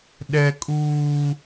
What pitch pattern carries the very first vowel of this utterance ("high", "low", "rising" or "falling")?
high